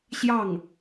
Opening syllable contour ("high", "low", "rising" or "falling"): falling